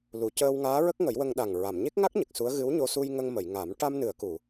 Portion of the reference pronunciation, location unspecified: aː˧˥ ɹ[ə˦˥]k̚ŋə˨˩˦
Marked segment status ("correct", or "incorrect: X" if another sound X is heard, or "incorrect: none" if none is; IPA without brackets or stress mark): correct